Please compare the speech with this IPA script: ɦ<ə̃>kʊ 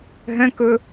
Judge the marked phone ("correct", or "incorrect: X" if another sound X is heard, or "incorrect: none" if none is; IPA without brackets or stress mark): correct